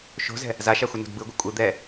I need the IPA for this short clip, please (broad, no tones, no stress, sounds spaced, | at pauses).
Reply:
ʃ o̤ z ɛ̤ | z a ʃ a xʷ ʌ n o̤ d b ɯ ɡʷ ɯ kʷʼ ɯ d̪ ɛ